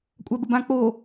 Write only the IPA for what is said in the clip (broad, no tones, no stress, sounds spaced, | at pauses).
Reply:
kʷʼ a b ə b ã k͡p o